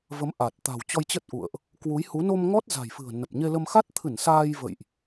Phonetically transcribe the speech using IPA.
və˨˦mʔa˨˩t̚ t̪a̤˨˩wt͡ɕɔ˧jt͡ɕə˦˥t̚ʔṵ˧˨ə̯ʔ | kwu˨˦jhu˨˦ no˧mŋɔ˦˥t̚za̤˨˩jfɨ̤˨˩ə̯ nə˨˩p̚ɲe˧lə˧m xa˦˥t̚t̪ʰɨ˧˩nsaː˧j və̰˧˨jʔ

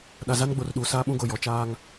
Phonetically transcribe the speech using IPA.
ɗa˨za˦nɡ͡bo˨rɗuː˨ saː˦ɓũ˦ ɡo˨jɔ˨t͡ʃaː˦ŋ

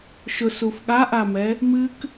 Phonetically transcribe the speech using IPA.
ʃʊsuf ɠaʔamɛ | mɨk

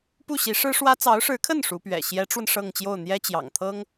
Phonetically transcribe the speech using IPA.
pu˥˩ ɕi˧˥ʂɻ̩˥ʂwä˥ t͡sɑ˧˥ʊ̯ʂɻ̩˧˥kʰə˥˩n ʂu˧˥pɥɛ̰˨˩ ɕjɛ˧˥ʈ͡ʂwə˧n ʂɤ˥˧ŋt͡ɕjo˥˩ʊ̯ n̪jɛ˥ t͡ɕjɑ̰˨˩ŋ t̪ʰɤ˥ŋ

